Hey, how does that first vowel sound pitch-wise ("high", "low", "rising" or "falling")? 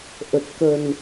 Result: low